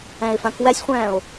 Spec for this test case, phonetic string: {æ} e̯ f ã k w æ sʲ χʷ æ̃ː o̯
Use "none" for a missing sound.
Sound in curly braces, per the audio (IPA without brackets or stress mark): æ̃